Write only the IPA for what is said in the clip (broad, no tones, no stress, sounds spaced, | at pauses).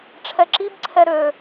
ʈ͡ʂʰ ɛ ǁ i b ǀʰ ɛ ɾ ø